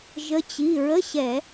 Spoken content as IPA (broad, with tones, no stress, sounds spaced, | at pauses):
ʒ ə˨˦ t͡ɕ i˩˧˩ ɹ ə˧˥˧ ɕ ɛ˧˩˧